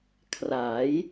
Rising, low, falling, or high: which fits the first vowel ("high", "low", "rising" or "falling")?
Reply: rising